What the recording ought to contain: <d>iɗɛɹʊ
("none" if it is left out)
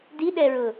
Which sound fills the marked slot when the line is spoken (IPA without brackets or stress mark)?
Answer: d